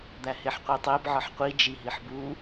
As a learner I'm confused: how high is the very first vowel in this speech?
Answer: low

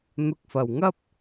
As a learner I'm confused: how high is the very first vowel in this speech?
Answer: high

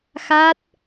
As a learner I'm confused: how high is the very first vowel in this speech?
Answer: low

